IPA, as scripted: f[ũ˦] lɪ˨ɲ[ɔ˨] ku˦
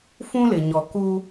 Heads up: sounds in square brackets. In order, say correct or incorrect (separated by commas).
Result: correct, correct